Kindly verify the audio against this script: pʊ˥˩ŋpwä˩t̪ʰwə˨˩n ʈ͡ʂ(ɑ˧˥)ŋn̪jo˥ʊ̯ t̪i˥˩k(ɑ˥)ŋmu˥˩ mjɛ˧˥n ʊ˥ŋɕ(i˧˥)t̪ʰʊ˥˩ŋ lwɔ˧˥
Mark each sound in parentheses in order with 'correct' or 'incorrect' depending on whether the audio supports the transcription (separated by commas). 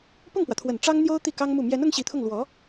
incorrect, correct, correct